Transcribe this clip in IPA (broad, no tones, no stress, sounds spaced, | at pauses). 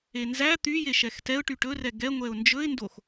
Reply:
e n z æ t̪ y j e ʃ ɛ x t ɛ ʊ̯ ʈ y ʈ ɵ r ɛ ɡ ɛ ŋʷ ɛ ʊ̯ n d͡ʒ ɵ ɪ̯ n d o x